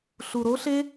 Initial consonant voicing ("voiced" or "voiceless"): voiceless